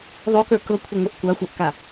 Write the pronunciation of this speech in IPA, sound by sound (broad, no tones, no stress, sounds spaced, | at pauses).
ðˤ o k ə˞ k ɤ kʷʰ ə ŋʷ ɪ ʔ kʷ a xʷ a ʔ k a